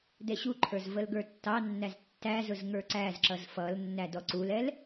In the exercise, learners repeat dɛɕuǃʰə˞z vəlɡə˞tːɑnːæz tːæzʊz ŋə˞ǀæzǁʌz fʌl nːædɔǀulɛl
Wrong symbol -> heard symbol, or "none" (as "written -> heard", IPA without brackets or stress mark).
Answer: none